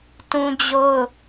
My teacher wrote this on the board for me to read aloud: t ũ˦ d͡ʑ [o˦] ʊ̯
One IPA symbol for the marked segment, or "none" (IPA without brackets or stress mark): o˦